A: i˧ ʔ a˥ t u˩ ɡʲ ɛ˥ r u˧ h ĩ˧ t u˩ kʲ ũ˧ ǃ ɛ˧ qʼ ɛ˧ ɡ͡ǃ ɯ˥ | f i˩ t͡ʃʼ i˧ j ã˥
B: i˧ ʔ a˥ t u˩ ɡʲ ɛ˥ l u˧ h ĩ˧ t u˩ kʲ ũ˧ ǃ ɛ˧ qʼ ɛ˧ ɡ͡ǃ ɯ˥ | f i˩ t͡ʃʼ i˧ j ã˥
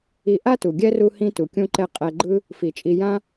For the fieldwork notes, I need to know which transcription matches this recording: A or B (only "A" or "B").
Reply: A